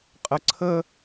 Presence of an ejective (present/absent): present